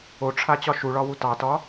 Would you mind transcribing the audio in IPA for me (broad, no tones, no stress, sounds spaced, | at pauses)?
o ʈ͡ʂʰ a t͡ɕ ɒ ʃ u ɭ ɒ w u t ɑ t ɒ